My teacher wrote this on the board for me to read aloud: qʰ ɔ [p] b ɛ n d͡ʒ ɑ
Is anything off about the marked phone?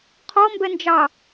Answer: yes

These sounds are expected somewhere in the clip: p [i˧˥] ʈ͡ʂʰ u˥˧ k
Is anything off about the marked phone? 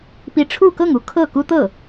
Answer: no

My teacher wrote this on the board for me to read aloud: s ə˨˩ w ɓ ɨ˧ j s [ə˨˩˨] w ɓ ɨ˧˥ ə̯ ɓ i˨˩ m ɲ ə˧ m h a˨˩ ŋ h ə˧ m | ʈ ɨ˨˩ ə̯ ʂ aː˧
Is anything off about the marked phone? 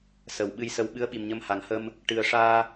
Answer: yes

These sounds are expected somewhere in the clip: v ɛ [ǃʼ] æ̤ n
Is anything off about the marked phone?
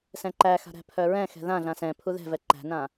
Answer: yes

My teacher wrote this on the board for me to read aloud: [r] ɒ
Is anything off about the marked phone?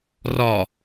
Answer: no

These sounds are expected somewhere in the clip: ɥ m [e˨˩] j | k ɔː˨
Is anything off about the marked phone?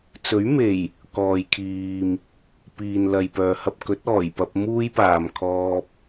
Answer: no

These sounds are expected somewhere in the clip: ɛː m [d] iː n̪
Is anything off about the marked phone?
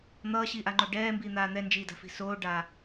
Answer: yes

